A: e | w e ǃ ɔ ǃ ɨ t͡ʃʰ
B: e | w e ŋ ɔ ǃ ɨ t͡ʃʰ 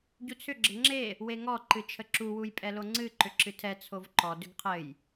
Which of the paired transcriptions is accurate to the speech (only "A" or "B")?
B